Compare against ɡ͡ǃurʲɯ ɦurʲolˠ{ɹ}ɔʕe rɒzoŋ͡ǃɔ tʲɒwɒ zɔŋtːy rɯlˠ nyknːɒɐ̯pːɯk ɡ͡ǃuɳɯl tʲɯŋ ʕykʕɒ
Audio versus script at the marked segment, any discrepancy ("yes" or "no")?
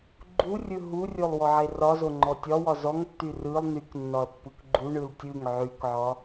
yes